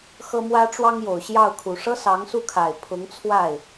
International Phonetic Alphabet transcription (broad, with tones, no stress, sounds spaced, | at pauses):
x ɤ˥ m w ä˥ ʈ͡ʂ w ɑ˥ ŋ j o˨˩ ʊ̯ ɕ j ɑ˥˩ ʊ̯ kʰ u˨˩ ʂ ɤ˥ s ɑ˧˥ ŋ s u˥˩ kʰ a˨˩ ɪ̯ pʰ ʊ˧˥ ŋ t͡sʰ w a˥˩ ɪ̯